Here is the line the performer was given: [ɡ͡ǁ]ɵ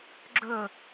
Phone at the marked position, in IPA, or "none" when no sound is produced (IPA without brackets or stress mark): ɡ͡ǁ